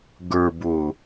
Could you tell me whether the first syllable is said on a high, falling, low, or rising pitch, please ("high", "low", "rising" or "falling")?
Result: low